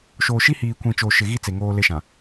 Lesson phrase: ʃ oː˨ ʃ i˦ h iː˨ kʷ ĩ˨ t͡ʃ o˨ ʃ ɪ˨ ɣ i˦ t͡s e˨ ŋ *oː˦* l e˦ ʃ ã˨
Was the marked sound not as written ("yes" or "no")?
no